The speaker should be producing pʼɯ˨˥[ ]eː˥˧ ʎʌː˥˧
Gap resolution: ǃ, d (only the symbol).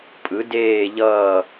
d